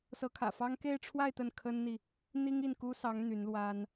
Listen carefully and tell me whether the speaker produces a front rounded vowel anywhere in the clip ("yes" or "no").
yes